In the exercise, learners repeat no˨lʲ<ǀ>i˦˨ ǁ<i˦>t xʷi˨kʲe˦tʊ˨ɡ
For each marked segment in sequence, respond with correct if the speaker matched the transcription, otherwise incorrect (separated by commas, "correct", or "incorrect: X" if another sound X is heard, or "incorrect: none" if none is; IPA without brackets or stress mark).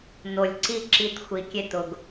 correct, correct